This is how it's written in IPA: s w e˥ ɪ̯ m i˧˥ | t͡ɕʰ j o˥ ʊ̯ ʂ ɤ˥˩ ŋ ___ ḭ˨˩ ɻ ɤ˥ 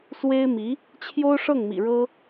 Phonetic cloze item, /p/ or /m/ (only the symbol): m